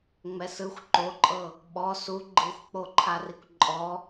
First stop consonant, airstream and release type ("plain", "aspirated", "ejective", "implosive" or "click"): click